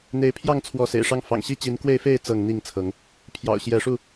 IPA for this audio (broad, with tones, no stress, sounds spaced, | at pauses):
n̪ e˨˦ ɪ̯ pʰ j ɑ˥˨ ŋ t͡sʰ w ɔ˨˦ s ḛ˨˩ ɪ̯ ʂ ɑ˦ ŋ f ɑ̰˨˩ ŋ ɕ i˥˨ t͡ɕ i˨˦ n k w e˥˨ ɪ̯ f e˥˨ ɪ̯ t͡s ɤ˥˨ ŋ n̪ i˥˨ ŋ t͡sʰ ɤ˨˦ ŋ | pʰ j ɑ̰˨˩ ʊ̯ ɕ j ɛ˨˦ ʂ u˥˨